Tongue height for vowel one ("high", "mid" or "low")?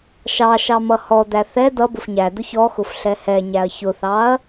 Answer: low